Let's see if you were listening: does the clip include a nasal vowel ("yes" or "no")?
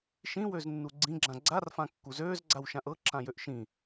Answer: yes